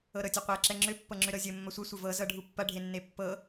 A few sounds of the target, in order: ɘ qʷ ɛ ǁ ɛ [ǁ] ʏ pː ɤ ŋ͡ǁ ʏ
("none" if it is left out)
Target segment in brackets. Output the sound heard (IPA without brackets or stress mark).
ŋ͡ǁ